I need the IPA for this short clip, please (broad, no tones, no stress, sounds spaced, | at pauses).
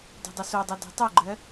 d ṳ dˤ o s o dˤ u d ɛ̤ tˤ u ɡ͡ǃ ɜ